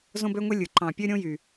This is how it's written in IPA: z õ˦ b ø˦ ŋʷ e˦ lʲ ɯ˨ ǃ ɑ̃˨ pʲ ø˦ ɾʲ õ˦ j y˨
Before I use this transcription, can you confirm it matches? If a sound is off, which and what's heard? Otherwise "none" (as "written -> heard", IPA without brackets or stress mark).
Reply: none